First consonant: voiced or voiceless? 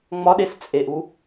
voiced